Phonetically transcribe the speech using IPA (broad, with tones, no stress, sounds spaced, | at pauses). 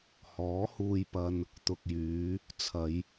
h ɔː˨˥ h uː˧ j p ɐ˧ n | t̪ ʊ˨ k̚ j yː˨˧ | t͡sʰ ɐ˨˧ j